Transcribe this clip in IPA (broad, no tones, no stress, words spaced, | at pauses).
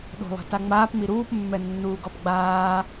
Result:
ɗo̤lˠɛ̤ta ŋ͡maːpmi ɾuːpmːɛnːuːɡɔp ɡ͡baː